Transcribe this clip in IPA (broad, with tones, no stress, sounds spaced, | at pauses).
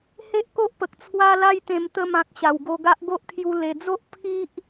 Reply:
h e˦ ʔ k o˦ ʔ p ə˨ k̚ t͡sʰ w a˦ l a˦ j t̪ ẽ˧ m t̪ ə˧ m ã˨ k̚ ɕ a˨˩ w ɡ o˧ ɡ a˦ ʔ ɡ o˦ ʔ kʰ j u˧ l e˨˩ d͡z o˦ ʔ pʰ i˦ ʔ